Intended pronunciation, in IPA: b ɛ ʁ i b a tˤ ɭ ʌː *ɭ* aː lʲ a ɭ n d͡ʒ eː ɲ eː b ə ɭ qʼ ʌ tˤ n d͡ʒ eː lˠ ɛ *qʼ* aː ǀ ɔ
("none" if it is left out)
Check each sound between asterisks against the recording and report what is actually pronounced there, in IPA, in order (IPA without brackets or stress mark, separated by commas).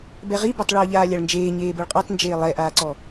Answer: ʎ, ʔ